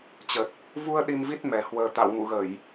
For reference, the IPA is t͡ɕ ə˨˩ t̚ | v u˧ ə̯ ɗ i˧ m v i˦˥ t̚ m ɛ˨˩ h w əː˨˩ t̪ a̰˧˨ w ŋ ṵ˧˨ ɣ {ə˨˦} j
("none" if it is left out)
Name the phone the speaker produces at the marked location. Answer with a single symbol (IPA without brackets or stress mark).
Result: ə˧˩˨